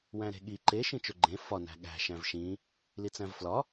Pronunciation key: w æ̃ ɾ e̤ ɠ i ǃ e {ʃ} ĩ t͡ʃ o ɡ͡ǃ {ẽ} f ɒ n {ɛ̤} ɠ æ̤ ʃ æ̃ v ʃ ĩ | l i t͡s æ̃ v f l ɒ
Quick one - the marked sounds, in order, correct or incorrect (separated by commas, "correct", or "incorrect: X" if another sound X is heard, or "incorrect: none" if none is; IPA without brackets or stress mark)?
correct, correct, incorrect: æ̤